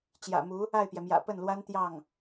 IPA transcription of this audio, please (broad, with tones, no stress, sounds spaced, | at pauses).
t͡ɕ j ä̰˨˩ m u˧˥ | a˥˩ ɪ̯ p j ɛ˩ m j ä̰˨˩ p ə˥˩ n l w a˥ n t̪ j ɑ˥˩ ŋ